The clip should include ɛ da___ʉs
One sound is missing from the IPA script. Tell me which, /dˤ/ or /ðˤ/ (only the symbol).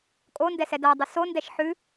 dˤ